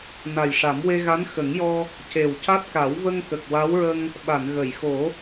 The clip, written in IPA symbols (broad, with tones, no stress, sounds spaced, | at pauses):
n a˨˩ j ʂ a˨˩˦ m w e˧ ɣ a˧˥ n x ə˨˩˦ ŋ j ɔ˧ | c e˨˩ w c a˦˥ t̚ k a˨˩˦ w v ə˧ ŋ k ə˨˩ k̚ w a˧˥ w ɹ ə˧ ŋ | ɓ a˨˩˨ n ɣ ə˨˩˨ j x o˨˩˦